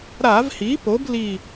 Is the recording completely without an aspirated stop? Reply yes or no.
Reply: yes